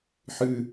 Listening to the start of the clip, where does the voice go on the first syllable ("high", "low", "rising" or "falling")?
high